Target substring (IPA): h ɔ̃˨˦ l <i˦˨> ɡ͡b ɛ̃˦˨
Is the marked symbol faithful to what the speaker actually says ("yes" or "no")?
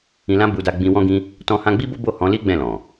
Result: no